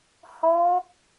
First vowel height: mid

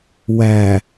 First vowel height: low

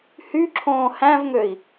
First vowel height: high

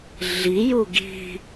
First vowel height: high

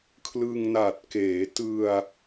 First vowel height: high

